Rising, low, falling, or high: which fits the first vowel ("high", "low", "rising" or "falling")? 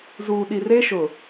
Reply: low